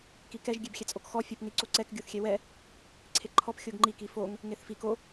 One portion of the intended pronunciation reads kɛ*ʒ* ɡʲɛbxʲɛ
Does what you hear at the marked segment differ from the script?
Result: no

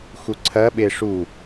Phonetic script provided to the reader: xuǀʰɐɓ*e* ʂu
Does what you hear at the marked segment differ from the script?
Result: no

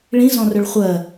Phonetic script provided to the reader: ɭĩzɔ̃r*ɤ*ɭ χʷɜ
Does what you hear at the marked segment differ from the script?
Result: yes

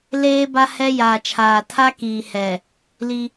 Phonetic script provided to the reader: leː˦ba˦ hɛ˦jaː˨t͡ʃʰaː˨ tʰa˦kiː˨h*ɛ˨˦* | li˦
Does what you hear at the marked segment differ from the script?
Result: yes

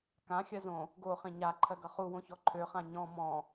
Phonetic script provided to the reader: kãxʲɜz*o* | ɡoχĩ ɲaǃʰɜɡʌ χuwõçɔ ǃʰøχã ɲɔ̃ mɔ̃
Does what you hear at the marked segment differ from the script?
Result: yes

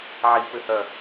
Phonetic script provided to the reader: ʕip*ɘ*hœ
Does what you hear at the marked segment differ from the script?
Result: no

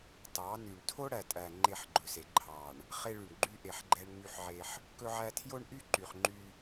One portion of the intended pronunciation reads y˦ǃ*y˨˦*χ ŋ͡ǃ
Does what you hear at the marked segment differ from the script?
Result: yes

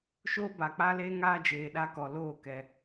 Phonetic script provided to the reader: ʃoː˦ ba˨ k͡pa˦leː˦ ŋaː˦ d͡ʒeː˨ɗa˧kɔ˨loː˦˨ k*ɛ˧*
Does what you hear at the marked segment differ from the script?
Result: no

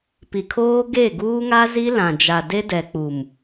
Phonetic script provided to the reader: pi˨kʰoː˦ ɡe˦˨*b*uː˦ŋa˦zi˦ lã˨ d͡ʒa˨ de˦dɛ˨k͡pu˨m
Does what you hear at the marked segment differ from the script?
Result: yes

